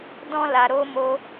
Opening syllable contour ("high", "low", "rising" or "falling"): high